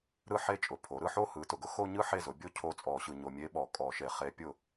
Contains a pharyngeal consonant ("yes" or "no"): yes